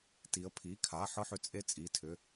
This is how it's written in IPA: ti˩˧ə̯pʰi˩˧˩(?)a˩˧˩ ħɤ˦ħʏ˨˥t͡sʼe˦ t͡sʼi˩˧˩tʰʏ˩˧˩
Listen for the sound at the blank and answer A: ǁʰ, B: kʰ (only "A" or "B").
B